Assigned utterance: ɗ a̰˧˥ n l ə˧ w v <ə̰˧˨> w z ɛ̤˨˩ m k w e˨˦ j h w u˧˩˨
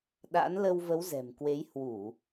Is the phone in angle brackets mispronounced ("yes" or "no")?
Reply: yes